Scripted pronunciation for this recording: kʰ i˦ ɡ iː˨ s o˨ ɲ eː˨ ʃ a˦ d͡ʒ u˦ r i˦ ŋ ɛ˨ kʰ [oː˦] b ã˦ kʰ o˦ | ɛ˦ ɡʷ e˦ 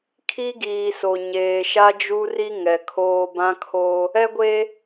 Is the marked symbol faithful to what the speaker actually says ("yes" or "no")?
yes